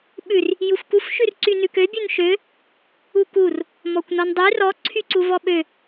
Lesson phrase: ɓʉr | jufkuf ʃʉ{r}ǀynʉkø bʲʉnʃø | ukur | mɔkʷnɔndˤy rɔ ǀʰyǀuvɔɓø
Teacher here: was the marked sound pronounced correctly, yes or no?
yes